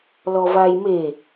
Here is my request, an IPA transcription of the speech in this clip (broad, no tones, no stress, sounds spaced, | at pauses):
l ɔ v a j m e